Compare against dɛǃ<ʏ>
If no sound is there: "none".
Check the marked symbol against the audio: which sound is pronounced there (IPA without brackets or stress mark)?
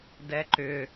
ʏ